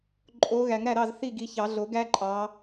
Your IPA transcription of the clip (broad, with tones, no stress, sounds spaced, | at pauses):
ǃʼ o˨˦ ɣ æ˨˩˦ ŋ ɾ æ˥˩ ɾ ɑ˥˩ z θ i˥˩ ɡ i˨˦ ç ɑ˨˩˦ ɮ o˨˩˦ ɡ æ˥ ǃʼ ɑ˨˦